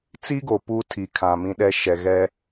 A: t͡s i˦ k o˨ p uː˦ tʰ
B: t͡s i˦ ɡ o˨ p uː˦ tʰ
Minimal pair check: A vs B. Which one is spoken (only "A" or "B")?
B